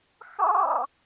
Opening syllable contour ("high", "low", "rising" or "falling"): falling